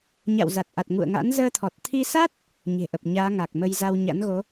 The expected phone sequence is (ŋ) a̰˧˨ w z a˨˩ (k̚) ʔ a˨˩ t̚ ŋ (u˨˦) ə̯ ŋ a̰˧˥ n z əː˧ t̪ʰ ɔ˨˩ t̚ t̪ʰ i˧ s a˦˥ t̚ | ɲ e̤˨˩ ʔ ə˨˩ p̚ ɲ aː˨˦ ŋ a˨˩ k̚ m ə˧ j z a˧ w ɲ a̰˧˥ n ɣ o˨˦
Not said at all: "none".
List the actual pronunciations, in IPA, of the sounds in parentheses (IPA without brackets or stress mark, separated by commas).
ɲ, t̚, ṵ˧˨